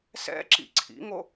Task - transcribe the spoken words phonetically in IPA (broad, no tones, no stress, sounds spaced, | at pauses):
s ɛ̰ ǁ ḭ ǀʰ ḭ ŋ o